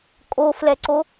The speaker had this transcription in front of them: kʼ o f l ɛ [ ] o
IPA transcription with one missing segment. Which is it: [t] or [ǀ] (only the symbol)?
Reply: ǀ